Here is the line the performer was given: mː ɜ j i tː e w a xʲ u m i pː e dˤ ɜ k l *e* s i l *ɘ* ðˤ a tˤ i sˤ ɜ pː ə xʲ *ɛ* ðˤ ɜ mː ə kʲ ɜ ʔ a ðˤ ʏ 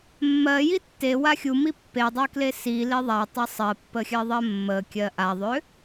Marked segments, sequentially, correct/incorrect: correct, incorrect: e, incorrect: ɜ

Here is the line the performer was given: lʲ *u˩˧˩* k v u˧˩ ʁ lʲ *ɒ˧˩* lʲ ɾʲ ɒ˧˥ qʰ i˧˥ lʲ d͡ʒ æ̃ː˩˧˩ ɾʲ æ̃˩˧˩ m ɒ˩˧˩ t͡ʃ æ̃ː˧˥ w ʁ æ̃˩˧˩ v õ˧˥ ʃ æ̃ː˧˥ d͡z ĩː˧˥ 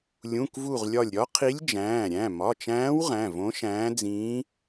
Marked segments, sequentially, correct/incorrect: incorrect: ũ˩˧˩, correct

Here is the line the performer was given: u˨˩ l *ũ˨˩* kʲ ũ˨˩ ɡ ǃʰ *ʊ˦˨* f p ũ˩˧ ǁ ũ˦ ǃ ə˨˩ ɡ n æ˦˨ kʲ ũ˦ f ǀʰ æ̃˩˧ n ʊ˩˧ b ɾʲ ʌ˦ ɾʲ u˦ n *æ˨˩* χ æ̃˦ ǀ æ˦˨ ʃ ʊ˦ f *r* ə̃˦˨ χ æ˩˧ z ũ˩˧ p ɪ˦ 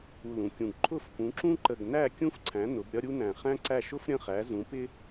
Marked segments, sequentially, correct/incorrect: correct, correct, incorrect: æ̃˨˩, incorrect: ɾʲ

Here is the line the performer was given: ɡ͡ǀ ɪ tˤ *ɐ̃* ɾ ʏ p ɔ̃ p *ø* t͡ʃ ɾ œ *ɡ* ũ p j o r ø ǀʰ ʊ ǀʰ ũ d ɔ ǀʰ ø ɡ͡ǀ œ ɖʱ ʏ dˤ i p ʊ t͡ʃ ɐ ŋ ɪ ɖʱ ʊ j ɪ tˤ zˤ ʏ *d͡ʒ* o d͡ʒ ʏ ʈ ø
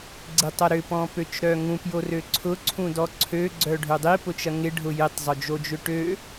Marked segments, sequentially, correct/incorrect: incorrect: ɐ, correct, incorrect: ŋ, correct

